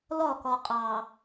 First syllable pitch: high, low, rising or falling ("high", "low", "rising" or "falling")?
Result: falling